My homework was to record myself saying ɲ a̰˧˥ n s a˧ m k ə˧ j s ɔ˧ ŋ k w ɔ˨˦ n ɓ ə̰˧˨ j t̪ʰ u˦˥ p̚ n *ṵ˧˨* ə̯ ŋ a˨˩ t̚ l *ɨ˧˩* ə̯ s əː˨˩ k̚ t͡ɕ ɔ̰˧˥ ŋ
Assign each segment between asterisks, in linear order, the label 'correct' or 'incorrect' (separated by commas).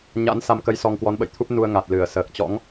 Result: incorrect, correct